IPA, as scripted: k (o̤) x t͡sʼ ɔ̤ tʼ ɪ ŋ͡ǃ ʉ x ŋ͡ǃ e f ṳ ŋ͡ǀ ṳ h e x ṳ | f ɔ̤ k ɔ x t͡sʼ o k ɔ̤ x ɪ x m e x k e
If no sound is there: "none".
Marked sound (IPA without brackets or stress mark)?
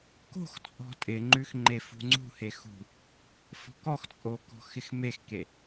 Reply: o̤